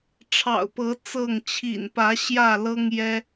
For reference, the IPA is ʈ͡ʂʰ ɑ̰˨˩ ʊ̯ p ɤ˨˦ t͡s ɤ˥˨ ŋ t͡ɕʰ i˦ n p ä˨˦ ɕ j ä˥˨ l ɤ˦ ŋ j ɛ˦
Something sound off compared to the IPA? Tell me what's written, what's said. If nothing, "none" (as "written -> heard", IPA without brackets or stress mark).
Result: i˦ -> ḭ˨˩